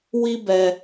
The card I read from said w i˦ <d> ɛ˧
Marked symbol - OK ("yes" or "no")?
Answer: no